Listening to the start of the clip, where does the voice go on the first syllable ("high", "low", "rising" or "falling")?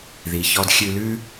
low